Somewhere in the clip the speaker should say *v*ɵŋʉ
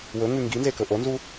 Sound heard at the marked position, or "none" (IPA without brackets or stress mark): w